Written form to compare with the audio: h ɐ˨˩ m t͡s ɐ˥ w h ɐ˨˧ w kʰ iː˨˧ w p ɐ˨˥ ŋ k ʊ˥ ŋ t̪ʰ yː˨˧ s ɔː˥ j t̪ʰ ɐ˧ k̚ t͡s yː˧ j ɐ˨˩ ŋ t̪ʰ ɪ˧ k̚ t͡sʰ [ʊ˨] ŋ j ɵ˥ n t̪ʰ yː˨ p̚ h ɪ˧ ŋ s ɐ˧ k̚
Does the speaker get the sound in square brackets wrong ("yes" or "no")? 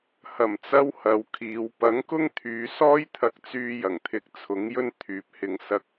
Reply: yes